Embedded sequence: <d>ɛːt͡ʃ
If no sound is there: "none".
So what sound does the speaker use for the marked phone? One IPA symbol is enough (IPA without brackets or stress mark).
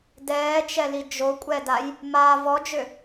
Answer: d